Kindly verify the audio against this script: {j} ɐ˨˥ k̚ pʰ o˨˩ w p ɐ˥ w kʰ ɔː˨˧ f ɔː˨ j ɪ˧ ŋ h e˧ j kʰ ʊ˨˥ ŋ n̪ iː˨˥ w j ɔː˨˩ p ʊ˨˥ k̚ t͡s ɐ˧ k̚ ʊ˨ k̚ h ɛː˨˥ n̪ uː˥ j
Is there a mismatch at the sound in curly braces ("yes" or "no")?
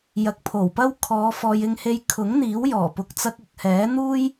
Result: no